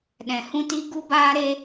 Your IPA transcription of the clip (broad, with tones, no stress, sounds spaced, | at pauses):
ɗ ɛ̃˧ h ũ˦ t i˦ ɡ u˦ b aː˦ ɾ e˦